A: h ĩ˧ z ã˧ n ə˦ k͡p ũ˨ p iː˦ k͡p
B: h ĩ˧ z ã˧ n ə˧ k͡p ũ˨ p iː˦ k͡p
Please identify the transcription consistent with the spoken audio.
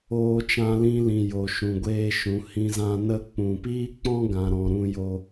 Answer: B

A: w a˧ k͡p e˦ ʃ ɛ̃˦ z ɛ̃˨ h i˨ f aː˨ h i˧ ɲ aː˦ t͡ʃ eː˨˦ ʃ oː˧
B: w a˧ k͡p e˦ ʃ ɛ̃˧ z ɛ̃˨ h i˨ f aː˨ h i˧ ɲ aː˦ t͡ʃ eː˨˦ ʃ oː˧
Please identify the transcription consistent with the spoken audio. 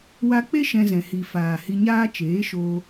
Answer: B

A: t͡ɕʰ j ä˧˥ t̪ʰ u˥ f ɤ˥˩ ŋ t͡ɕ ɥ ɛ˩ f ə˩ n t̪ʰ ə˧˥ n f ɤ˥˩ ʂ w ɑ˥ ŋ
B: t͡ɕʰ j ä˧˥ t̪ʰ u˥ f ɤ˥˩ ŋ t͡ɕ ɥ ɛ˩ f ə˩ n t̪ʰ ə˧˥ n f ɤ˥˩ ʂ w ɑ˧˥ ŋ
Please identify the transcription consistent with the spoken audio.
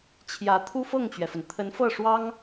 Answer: A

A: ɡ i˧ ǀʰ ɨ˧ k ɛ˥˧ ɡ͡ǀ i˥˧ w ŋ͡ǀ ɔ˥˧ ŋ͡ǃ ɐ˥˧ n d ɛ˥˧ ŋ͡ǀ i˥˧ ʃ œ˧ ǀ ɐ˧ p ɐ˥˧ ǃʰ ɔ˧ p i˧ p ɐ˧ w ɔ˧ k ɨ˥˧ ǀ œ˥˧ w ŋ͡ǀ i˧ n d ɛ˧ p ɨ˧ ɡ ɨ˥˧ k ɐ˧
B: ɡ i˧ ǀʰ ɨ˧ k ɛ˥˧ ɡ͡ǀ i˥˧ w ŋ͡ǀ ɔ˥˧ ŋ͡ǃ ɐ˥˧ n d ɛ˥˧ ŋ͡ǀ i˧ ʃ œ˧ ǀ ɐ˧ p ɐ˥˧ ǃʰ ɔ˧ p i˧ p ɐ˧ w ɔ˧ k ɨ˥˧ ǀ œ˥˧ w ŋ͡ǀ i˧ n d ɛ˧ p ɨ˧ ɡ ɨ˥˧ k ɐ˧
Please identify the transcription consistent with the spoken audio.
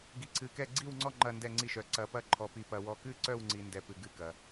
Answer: A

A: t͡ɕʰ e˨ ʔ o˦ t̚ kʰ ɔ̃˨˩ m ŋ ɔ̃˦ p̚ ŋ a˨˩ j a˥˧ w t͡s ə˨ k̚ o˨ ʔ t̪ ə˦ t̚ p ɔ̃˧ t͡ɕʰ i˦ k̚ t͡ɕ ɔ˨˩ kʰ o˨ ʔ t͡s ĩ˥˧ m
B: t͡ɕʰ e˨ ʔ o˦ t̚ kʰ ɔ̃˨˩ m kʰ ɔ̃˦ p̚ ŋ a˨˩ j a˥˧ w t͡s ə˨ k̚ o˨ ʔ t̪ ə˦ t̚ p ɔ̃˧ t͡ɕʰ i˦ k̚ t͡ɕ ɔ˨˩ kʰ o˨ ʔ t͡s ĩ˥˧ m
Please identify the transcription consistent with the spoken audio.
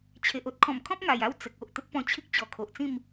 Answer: B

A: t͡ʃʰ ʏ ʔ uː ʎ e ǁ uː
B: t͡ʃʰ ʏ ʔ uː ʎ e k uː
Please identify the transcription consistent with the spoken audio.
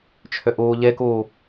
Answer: B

